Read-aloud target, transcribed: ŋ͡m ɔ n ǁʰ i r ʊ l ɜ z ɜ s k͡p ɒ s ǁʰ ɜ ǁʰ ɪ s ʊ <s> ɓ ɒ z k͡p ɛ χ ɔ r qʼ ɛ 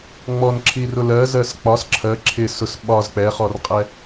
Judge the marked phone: correct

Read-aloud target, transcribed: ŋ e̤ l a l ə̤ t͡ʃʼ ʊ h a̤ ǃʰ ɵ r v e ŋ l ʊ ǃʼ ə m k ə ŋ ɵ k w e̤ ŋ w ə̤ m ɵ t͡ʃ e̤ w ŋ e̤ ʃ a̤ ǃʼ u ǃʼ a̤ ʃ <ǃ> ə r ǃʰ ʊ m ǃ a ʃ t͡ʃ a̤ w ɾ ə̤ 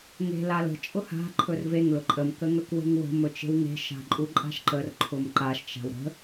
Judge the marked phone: correct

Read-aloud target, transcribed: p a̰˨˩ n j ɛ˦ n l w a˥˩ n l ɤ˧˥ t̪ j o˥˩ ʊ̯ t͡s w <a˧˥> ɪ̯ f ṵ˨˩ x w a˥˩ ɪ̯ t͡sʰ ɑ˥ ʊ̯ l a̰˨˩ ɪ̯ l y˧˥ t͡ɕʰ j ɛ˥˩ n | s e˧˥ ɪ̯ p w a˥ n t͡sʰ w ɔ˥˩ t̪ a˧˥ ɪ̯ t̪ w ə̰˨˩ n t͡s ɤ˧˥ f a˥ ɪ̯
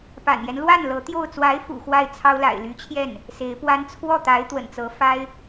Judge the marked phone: correct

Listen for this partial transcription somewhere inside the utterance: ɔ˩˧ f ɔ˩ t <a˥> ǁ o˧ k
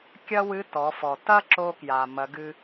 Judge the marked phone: incorrect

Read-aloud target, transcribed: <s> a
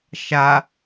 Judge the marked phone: incorrect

